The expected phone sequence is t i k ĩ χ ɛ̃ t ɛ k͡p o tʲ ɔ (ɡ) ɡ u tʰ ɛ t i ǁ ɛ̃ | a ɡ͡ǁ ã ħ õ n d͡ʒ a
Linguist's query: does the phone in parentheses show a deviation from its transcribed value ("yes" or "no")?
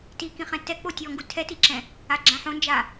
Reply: yes